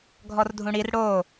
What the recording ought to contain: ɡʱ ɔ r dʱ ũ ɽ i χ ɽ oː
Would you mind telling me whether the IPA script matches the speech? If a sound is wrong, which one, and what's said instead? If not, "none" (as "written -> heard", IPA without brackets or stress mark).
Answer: χ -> r